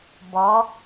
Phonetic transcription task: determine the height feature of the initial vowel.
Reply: mid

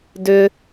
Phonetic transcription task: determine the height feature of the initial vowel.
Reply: high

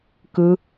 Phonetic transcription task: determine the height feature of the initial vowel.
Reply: high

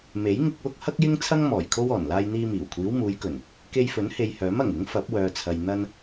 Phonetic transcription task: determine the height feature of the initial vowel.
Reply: mid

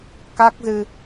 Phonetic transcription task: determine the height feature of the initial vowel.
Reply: low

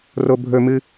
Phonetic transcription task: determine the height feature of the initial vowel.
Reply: mid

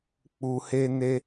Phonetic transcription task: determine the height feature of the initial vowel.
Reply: high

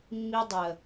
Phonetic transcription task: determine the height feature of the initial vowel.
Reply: high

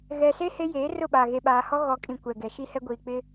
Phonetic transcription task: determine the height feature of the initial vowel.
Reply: mid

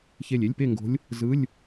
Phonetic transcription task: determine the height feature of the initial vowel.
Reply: mid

